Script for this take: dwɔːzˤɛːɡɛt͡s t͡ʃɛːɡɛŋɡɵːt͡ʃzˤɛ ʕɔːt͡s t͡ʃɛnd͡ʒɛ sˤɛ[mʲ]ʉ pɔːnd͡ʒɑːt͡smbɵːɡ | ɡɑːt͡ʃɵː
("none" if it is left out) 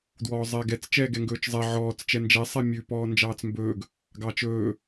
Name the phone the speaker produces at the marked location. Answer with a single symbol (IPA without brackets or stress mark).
mʲ